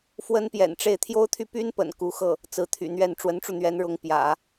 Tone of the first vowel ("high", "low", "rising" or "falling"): high